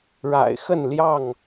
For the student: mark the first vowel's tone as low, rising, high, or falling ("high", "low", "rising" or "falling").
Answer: low